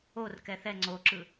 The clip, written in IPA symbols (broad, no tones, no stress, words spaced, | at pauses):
or kɛθɛ ŋ͡ǀoǁɯ